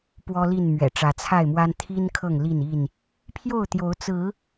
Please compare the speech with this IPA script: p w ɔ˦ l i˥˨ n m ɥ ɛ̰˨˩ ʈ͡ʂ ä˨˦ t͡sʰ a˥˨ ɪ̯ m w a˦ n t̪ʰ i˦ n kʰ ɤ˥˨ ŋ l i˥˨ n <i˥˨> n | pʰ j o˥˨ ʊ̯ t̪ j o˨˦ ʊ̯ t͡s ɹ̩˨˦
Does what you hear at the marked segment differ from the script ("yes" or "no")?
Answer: no